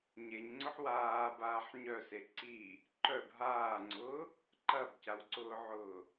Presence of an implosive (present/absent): absent